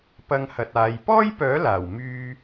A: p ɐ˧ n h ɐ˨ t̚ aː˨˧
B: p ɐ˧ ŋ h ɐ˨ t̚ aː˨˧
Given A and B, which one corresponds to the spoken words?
B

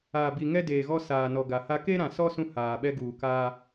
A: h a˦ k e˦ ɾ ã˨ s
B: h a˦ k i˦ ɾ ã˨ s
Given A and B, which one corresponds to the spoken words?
A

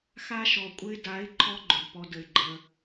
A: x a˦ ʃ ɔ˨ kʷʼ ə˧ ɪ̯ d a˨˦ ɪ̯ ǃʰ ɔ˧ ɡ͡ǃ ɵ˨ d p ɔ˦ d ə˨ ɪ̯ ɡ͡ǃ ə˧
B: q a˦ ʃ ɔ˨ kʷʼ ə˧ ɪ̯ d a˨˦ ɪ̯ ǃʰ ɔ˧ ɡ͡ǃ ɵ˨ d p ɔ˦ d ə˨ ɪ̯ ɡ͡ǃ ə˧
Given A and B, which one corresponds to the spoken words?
A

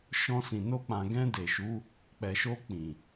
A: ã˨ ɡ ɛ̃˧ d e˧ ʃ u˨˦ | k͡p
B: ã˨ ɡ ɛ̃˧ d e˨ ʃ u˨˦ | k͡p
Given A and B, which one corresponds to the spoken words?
B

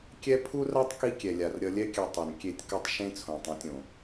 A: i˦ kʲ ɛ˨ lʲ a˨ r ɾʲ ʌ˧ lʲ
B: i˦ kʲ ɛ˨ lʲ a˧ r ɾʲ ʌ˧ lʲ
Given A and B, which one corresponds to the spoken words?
A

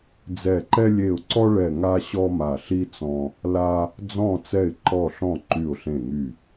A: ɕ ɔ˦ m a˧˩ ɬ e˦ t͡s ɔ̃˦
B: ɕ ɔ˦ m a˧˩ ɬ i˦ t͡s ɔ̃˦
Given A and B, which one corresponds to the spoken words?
B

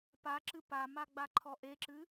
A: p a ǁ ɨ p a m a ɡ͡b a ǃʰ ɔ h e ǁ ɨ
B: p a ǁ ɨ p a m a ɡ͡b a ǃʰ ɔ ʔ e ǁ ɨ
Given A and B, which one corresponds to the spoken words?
B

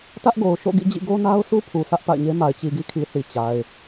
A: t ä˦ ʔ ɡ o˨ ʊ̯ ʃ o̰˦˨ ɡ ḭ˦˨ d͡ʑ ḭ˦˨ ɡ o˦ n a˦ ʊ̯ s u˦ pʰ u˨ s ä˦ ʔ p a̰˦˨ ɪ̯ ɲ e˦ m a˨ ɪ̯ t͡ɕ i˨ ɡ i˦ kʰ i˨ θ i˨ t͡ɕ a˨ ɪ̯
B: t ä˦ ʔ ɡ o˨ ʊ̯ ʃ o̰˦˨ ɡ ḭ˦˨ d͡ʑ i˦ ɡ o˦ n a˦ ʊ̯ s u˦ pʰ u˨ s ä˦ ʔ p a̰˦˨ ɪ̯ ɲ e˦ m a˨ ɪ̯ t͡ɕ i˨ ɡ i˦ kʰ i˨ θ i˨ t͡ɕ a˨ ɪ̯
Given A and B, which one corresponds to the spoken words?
A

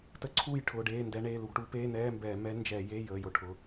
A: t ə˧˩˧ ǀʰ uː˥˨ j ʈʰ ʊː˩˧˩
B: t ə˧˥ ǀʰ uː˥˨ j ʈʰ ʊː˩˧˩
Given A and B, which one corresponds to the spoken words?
B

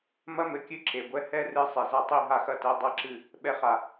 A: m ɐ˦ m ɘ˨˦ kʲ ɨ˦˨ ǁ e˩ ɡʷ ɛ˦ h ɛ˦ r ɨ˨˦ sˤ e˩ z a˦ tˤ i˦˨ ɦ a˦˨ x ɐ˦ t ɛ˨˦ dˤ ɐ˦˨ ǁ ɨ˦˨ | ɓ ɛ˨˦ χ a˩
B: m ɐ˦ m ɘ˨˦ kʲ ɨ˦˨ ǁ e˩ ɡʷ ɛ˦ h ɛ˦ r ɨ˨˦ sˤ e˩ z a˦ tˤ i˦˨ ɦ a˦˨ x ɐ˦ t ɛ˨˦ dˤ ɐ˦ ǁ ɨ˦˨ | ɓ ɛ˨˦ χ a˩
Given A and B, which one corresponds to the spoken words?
B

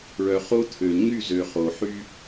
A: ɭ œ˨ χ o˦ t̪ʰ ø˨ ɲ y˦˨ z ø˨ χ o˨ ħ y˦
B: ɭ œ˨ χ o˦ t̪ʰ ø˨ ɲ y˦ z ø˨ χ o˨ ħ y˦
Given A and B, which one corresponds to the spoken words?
A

